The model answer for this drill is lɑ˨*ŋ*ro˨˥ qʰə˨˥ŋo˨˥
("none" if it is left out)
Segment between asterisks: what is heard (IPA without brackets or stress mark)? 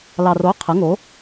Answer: none